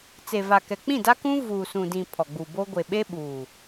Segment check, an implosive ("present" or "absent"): present